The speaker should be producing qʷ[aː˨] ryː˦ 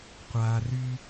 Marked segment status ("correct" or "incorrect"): correct